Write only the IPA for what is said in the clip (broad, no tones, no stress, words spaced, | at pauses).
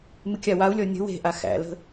mɨkʲawau̯lʲɔ nʲə̤ we̤ʔa xæ̰lə̤